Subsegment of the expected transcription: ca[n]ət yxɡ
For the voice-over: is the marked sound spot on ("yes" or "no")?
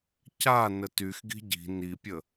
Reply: yes